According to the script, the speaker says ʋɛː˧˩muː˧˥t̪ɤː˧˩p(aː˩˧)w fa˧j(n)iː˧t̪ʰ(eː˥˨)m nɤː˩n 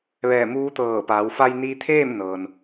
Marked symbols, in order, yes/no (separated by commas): yes, yes, yes